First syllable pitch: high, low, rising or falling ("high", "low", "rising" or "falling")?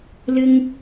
high